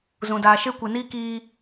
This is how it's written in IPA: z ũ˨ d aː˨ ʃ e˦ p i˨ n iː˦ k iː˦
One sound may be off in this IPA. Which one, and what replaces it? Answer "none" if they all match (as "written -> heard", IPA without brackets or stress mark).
p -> kʷ